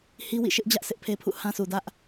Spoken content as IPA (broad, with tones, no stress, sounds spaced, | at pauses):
h i˦ w ḭ˦˨ ʃ ɪ˦ ʔ d͡ʑ ä˦ ʔ sʰ ɪ˦ ʔ pʰ e˦ pʰ ṵ˦˨ h ã˦ sʰ u˨ d ä˦ ʔ